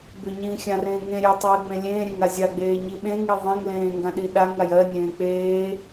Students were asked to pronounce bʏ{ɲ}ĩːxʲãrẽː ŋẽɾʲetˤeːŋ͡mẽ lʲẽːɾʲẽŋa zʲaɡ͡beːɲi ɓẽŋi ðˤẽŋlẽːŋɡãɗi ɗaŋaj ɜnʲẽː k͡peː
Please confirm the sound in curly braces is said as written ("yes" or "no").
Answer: yes